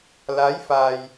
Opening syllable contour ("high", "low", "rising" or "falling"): rising